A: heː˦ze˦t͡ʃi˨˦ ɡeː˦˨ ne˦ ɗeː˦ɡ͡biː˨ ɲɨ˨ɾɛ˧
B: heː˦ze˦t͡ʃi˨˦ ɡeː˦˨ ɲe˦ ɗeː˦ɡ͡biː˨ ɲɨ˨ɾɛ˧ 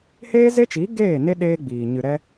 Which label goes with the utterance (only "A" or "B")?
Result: A